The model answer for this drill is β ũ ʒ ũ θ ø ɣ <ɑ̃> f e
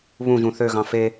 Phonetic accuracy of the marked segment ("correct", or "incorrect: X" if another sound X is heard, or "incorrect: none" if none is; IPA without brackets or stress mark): correct